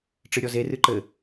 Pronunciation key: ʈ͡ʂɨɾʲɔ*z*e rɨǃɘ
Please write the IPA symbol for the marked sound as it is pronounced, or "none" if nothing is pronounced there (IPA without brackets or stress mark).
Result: z